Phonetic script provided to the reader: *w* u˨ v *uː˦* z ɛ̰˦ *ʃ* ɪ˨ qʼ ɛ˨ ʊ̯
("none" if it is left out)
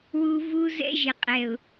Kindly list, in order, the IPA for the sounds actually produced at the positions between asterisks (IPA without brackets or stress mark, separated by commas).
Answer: w, u˦, ʒ